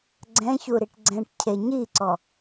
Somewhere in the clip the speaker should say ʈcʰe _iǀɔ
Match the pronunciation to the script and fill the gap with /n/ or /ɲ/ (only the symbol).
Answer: ɲ